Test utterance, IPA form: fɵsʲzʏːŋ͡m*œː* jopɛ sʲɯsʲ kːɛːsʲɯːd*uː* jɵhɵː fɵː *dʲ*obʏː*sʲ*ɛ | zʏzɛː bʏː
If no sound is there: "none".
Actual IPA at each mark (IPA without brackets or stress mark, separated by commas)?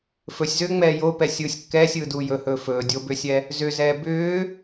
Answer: ɛː, uː, dʲ, sʲ